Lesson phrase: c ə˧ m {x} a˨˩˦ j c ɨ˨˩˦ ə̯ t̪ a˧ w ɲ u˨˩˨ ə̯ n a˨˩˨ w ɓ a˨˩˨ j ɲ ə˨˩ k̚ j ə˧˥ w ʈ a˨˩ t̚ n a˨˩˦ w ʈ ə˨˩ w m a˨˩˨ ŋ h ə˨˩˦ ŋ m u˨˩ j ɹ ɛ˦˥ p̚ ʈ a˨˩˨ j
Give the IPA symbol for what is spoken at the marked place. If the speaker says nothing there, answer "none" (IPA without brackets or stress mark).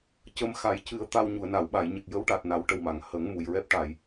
x